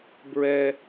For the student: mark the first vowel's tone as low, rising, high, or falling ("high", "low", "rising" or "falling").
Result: low